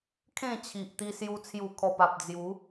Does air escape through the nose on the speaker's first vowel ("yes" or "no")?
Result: yes